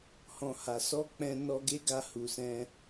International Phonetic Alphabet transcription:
hɔ̃˨ha˨sɔ˧ k͡pɛ̃˧ nɔ˧ɡe˦ɡa˧ hu˨sɛ̃˧

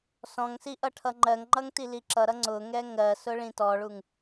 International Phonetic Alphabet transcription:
sɔ̃ŋsi ʔʌʈʰʌŋ͡ǃɜŋŋ͡ǃʌŋ tiliǁʌɾʌ ŋ͡ǀʊŋɛ ŋɜsʊ ɭĩtɔɭuŋ

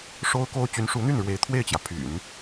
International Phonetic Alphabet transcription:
ʂo˥ʊ̯ko˥ʊ̯ t͡ɕy˧˥nʂu˧˥n̪y˥˩nɻwe˧˥ɪ̯ t̪ʰwe˥˩ɪ̯t͡ɕjä˩ pʰy̰˨˩˦n

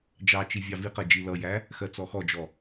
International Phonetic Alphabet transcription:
d͡ʒɑt͡ʃi vʲɑviqɜ d͡ʒilʌjæ | xɜt͡sɔxɔd͡ʒɔ

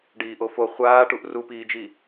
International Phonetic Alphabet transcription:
ɖiːʔofo χʷaːʈuʔ rupiːd͡ʒi

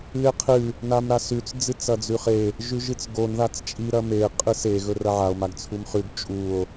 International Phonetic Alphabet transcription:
ɨe̯qʰɨ | namɾasʉt͡s d͡zɨt͡sɐd͡zʉχe | ʒʉʒɨt͡sɡon ðat͡st͡ʃʼi ɾɐme qʼɨse ɣɵrɐʕao̯ maɡt͡sʰumχʉɡ t͡ʃʼuo̯

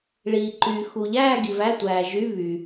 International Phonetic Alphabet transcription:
ɭiː˨ǃyː˨ xu˨ʎæː˥˧ ɡi˨væ˧˥˧tʷæː˨ʒy˧˥˧ βy˨

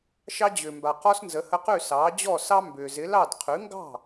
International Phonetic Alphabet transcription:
ʃɑ˧d͡ʑʏː˩mba˩qɔ˧s nzə˩˥hə˧qʉ˥˩ sɑː˩˥d͡ʑɔː˥˩sɑ˥ mbʏː˩zɪ˩˥lɑ˥˩d qʰʉ˩˥ŋɡɑ̤˥˩

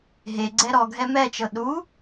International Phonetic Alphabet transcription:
ɦeɡ͡ǀɛ ɾɔɡʱɛ mɛt͡ʃɤ ɗu

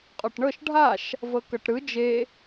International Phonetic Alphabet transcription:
qʼɔʈɳɤʃ ɖʱaʃ | vɤkɤʈɾɯ d͡ʒe

